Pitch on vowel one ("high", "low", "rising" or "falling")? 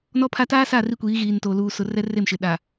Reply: high